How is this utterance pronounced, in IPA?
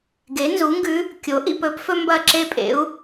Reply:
ɡ e˩˥ n z u˩˥ ŋ ɡ ʉ˧˥ | kʲ o˩˥ ʔ ḭ˨ p ɵ˩˥ p f ɵ˥ m b ɐ˥˧ ǁ e˥˧ pʼ ḛ˩˥ u̯

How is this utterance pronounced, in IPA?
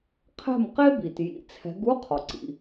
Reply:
qʰ ɛ̤˥˩ m q e˥ b i˩ t j ḭ˨˥ t͡sʰ ɛ̤˨˥ ɡ u˧˥˧ qʰ ɔ˩ ǀ ḭ˩

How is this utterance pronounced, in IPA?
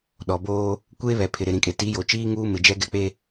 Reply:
ɗ ɔ˨ b oː˦ | kʷ eː˦ β ɛ˨ pʰ ɪ˨ ɾ ɪ˨ ɾ ĩ˨ kʼ e˨ t i˨˦ j o˨ t͡ʃ iː˦ ŋ uː˦ m ɪ˨ d͡ʒ ɛ˦ ɡ ɛ˦ k͡p e˦

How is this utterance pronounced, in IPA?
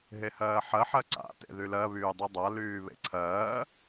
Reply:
ɦ e h ɜː ħ ɜ ħ ɜ ǀ a̰ t ḛ ð y l ɜ β yː dˤ u dˤ a l yː β ḛ ǀʰ ɜː

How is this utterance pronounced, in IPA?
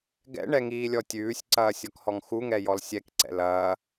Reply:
ɡ ɛ̰ ɳ ɛ ŋ iː lʲ ɔ tʲ ʉː sʲ ǀ ɐː sʲ ɔ k h ɔ ŋ x u ŋ ɛ j ɔ l sʲ ɛ k ǀ ɛ̰ l ɐː

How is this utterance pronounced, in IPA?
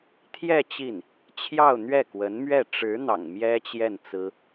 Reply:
t̪ʰ j ɛ˥˧ t͡ɕ i˥˩ n | t͡ɕʰ j ɑ˥˧ ʊ̯ n̪ ɥ ɛ˥˩ k w ə˧˥ n m ɥ ɛ˥˩ ʈ͡ʂ ɻ̩˧˥ n̪ ɑ̰˨˩ ŋ m j ɛ˥ t͡ɕ j ɛ˥˩ n t͡s ɹ̩˥

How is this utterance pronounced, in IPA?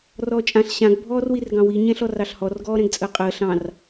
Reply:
r ɔː t͡ʃʼ ã ɬ ɕ ã ɡ bʱ ɔː r w i r ɡ ɑ̃ w i ɲ ɛ̃ ɬ ɔ r ɑ ɬ h ɔ r ɡ ɔː ɾ ɛ̃ ɡ t͡sʼ əː qʼ əː ɬ ɑ̃ r

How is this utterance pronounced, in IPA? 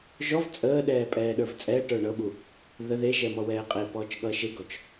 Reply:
ʒ ɔ v t͡sʼ əː ɗ ɛː pʼ ɛː ɗ ə˞ v t͡sʼ ɛː ʈ ə˞ ɳ ɤ ɓ u | ð ə ð e ʒ ɛ m ɔ w ɛː qʼ e p ɔː t͡ʃ ɠ ʌː ʃ e ɡ ɔ t͡ʃ

